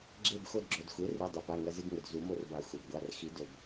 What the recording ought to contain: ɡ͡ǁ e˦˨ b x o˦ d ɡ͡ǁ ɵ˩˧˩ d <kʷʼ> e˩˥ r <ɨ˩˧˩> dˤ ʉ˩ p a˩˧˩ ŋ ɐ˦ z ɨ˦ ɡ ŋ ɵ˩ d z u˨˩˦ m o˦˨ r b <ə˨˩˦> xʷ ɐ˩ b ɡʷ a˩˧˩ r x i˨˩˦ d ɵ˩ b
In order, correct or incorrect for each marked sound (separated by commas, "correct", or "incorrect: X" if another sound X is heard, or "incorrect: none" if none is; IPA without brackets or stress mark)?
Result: incorrect: xʷ, correct, incorrect: a˨˩˦